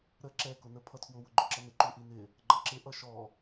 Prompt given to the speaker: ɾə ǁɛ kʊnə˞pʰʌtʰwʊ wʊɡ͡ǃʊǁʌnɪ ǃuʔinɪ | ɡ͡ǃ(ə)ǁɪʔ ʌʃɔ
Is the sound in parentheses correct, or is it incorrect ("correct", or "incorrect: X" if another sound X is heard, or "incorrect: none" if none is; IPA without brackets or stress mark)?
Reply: incorrect: ʌ